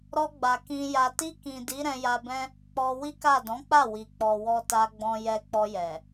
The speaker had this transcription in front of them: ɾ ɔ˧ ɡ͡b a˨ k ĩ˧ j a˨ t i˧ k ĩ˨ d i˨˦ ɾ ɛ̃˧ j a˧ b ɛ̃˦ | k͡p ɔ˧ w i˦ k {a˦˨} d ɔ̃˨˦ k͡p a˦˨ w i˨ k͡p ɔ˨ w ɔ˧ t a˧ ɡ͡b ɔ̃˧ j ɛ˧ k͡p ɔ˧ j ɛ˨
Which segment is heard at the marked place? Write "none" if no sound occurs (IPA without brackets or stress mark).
a˦˨